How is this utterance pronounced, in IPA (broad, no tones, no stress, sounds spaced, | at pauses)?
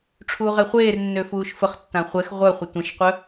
ʈ͡ʂʰ uː ʁ e χʷ eː r nː ø f uː ʃ f ə χ tː ã χʷ ɛ x ʁʷ œ χʷ ə tʷ ə̃ ʃ qʷ œ